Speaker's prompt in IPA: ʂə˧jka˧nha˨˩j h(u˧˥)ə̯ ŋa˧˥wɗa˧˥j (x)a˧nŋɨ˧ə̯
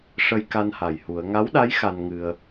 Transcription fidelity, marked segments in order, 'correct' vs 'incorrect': incorrect: u˨˩˦, correct

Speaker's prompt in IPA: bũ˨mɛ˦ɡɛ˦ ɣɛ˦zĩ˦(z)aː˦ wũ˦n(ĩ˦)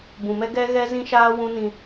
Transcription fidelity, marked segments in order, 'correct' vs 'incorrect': incorrect: ʃ, correct

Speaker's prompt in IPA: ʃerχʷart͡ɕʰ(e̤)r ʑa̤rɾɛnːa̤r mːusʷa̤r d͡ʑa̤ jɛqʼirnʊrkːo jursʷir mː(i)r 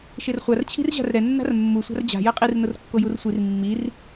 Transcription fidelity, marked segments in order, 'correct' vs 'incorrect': incorrect: i̤, correct

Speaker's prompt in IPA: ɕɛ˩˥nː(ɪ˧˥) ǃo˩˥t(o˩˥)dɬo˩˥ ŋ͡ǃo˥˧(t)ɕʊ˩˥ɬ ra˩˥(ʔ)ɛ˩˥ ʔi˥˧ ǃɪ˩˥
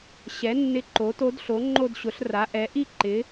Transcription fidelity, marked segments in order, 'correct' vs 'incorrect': correct, incorrect: o˧˥, incorrect: d, correct

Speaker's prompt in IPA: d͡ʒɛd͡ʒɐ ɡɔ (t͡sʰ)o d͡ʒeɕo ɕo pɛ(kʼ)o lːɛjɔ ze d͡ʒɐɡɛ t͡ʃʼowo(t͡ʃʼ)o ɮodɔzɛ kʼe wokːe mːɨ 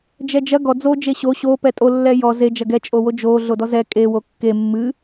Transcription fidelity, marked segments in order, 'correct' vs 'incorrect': incorrect: d͡z, incorrect: tʼ, incorrect: d͡ʒ

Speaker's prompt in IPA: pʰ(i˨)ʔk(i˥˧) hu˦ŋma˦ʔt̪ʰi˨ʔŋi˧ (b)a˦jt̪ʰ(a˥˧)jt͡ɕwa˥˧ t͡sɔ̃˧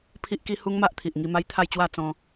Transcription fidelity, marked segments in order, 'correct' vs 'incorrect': incorrect: i˦, incorrect: i˦, incorrect: m, correct

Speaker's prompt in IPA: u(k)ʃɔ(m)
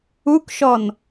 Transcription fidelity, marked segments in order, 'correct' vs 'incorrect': correct, incorrect: n

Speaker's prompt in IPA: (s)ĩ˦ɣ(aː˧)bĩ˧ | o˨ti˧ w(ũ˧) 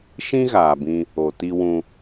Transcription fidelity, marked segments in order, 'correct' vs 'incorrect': incorrect: ʃ, incorrect: aː˨, correct

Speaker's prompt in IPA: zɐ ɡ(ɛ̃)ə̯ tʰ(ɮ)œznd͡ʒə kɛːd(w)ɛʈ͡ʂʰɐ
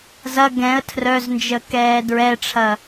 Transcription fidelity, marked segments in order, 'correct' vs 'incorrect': correct, incorrect: r, incorrect: ɹ

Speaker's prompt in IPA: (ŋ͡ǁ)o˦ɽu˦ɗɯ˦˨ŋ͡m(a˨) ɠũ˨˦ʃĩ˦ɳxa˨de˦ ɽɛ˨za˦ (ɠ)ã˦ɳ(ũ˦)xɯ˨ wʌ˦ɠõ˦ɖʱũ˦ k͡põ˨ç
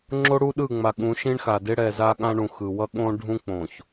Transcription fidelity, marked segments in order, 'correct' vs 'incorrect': correct, correct, correct, incorrect: ũ˨

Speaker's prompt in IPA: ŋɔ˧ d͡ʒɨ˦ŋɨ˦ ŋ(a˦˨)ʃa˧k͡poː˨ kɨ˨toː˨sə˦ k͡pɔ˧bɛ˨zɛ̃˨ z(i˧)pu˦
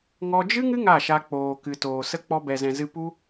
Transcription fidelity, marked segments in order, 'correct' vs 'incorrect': correct, incorrect: ɨ˧

